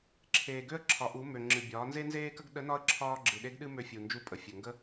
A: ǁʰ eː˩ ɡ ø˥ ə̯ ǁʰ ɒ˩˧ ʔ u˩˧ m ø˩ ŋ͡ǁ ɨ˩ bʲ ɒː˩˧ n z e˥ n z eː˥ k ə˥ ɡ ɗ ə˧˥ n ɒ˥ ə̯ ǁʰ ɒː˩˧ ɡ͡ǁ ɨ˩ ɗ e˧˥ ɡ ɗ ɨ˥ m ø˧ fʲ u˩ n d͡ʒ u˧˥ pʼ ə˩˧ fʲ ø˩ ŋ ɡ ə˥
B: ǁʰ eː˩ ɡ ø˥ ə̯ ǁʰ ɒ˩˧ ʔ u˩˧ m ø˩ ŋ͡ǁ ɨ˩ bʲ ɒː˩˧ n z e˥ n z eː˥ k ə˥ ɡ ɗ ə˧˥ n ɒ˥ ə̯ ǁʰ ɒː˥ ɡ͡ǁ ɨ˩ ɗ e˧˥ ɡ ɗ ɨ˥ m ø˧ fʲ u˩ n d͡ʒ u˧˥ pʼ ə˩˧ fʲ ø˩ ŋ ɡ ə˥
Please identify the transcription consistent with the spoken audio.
B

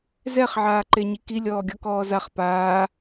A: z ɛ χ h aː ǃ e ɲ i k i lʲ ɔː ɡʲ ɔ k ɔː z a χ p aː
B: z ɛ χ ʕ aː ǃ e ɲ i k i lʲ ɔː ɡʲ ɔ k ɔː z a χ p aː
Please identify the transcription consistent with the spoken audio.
B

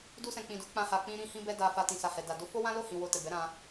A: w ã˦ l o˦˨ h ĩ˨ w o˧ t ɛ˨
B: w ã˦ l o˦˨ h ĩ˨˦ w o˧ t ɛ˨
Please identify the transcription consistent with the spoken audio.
A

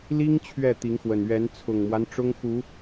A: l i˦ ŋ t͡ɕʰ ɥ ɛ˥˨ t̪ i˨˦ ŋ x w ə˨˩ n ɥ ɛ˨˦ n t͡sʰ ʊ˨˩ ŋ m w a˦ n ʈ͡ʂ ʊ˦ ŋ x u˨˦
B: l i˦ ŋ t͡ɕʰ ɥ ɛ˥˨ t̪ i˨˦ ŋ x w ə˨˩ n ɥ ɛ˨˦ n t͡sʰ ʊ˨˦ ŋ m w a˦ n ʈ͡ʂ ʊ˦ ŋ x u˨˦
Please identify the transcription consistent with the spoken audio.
A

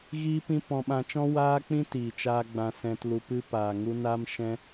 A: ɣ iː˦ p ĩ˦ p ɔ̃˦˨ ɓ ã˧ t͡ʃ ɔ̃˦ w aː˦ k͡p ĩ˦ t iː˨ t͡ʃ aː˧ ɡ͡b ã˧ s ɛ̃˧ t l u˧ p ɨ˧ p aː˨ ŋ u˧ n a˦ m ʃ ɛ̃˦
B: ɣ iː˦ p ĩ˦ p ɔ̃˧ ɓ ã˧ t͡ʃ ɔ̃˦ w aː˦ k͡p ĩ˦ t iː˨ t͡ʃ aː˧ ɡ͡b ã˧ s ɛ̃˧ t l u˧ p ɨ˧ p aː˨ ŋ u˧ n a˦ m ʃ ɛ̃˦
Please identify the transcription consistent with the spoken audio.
B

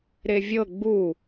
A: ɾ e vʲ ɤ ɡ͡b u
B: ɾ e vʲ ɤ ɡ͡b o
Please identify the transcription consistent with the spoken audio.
A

